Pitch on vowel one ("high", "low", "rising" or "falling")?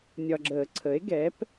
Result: low